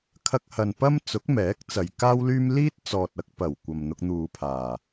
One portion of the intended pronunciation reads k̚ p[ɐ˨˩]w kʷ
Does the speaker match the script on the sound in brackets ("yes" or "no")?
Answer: yes